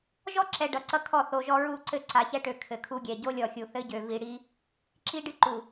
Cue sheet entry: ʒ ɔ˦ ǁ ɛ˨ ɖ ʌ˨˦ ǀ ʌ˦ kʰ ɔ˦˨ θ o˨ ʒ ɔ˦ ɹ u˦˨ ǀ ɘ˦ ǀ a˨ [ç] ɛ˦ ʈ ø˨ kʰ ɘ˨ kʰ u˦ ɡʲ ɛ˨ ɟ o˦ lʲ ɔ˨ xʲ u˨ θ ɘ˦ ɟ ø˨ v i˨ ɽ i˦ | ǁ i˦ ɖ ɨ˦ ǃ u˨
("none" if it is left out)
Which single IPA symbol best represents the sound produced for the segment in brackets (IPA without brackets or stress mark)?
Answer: ç